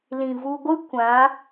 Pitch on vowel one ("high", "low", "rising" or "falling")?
low